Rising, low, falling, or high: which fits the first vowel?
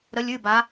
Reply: rising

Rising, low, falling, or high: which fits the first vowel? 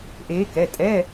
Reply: rising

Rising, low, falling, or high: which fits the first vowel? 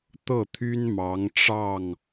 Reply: falling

